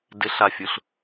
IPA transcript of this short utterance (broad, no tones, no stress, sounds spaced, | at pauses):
d ɪ ɬ a fʲ ʊ ɬ